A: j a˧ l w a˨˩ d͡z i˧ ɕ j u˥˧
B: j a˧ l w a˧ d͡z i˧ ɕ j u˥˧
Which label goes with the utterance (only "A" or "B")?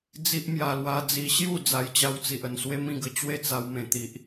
B